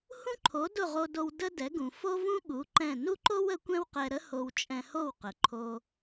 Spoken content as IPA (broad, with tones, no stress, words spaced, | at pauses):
hũ˥ǃʰo˩˥ dʊ˥˩ʁo˧do˧w də˥dɛ˩˥ɡũ˩ fo˥vũ˥ ɠu˩˥ ǃɛ̃˥˩ nu˥ǃo˥w ə˩˥kʷɛ̃˥wqɛ˧ɾə˥ ho˧wt͡ʃʼɛ̃˧ho˥˩wqə˩ ǃʰo˧